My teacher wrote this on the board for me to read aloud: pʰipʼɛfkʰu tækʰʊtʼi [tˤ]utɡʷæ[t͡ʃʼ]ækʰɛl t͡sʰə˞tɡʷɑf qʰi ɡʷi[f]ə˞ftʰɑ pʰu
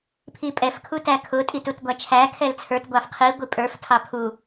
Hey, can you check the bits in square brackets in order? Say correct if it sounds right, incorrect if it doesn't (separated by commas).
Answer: incorrect, incorrect, incorrect